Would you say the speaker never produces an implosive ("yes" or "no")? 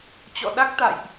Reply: no